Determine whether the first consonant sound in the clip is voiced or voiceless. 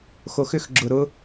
voiceless